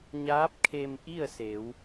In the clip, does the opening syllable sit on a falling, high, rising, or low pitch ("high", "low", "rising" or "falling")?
rising